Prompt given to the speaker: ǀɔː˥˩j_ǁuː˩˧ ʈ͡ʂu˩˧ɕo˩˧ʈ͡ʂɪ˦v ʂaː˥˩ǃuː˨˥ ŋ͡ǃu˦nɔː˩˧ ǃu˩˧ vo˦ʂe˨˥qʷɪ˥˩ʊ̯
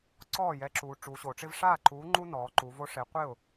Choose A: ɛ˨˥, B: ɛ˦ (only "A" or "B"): A